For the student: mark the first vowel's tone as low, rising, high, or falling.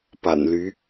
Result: low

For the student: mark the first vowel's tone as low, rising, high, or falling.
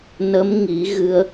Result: rising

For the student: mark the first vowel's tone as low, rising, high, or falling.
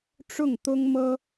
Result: falling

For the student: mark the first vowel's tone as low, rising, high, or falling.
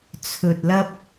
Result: low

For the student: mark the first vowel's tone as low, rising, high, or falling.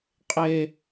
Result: high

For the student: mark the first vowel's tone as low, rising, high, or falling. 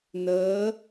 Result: rising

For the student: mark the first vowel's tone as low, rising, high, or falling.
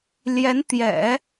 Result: rising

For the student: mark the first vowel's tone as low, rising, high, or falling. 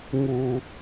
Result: low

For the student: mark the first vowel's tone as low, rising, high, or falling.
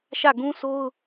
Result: falling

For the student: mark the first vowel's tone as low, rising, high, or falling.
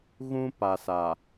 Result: high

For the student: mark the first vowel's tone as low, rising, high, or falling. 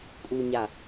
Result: low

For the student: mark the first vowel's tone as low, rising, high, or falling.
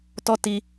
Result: high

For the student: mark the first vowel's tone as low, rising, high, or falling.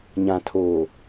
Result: low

